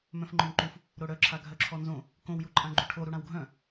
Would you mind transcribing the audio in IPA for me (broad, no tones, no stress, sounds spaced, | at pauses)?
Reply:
m œ̃ f ŋ͡ǃ œ̃ m ǃ u f | ɾ o ɽ œ ǁʰ a ɡʱ œ ǁʰ ɔ n z õ | k õ w j u ǃʼ ã ɡ͡ǃ u ʈʰ o ɾ u ɽ ã w ɡʱ œ̃